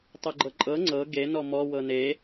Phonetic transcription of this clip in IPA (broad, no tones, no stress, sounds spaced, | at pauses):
tˤ ɤ ɡ͡ǃ ɤ ǃʼ ɤ ŋ͡ǀ ɤ ɡ e n ɔ m ɔ w ɤ n e